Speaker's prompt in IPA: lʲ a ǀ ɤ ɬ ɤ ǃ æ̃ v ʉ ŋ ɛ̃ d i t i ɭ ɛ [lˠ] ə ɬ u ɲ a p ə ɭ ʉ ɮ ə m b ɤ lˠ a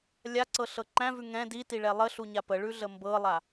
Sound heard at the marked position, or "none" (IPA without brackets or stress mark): lˠ